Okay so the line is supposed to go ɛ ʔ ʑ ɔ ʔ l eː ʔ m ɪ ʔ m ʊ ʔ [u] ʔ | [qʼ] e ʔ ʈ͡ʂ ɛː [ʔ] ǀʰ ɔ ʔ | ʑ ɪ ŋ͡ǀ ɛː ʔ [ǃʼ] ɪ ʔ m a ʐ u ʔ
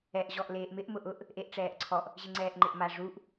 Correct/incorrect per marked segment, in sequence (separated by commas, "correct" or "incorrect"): incorrect, incorrect, correct, incorrect